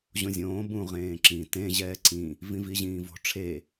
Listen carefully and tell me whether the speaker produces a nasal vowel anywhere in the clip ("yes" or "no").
yes